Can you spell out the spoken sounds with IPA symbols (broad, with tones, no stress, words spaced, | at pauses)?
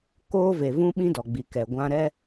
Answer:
koː˦ve˨ vũ˦ɓĩ˦dɔ˨ɡ͡bi˨ kɛ˨ɡʷã˦ ɾɛ˦